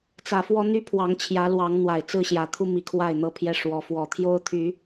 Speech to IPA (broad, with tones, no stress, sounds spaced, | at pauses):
t͡s ä˨˩ f w ɔ˦ n̪ y˦ pʰ w ɑ˨˦ ŋ t͡ɕʰ j ä˨˦ l w ɑ˨˦ ŋ n̪ w a˨˩ ɪ̯ t͡s ɹ̩˥˨ ɕ j ä˨˦ t̪ʰ u˦ m i˨˦ kʰ w a˥˨ ɪ̯ n̪ ɤ˥˨ pʰ j ɛ˥˨ ʂ w ɔ˨˦ f w ɔ˨˩ t̪ʰ j o˦ ʊ̯ t̪ʰ y˨˦